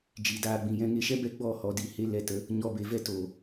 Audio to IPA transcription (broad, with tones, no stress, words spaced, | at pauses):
d͡ʒi˨daː˧ɡ͡bĩ˨jɛ̃˦ ŋe˧ʃɛ˦bɛ˦ɡ͡bɔ˦˨ hɔ˧di˨he˦ lɛ˧tə˦ | ɲɔ˧be˨vɛ˦ to˨